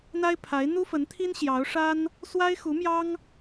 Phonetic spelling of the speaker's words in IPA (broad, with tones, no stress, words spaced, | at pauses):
n̪a˥ɪ̯pʰa˧˥ɪ̯ n̪u˥fə˧˥nt̪ʰi˥n ɕjɑ˧˥ʊ̯ʂa˥n | swa˥ɪ̯xu˧˥mjɑ˥ŋ